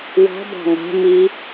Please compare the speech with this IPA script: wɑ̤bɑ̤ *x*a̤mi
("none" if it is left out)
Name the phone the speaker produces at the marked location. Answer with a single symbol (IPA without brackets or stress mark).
ŋ